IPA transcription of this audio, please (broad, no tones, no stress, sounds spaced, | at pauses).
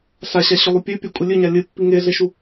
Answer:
ɬ a ɕ a ɕ ɵ lˠ ʉ pʲ ʉ pʲ ɵ kʷʼ i lʲ ʉ ɲ a lʲ ɨ pː i ŋ e ɮ e ʃ u